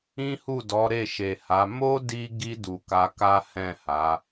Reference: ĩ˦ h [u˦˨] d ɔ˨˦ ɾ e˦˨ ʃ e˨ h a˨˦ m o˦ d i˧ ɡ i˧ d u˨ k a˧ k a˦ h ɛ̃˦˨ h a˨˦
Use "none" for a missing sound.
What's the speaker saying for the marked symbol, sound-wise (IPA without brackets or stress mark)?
u˦˨